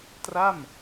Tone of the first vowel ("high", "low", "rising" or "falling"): falling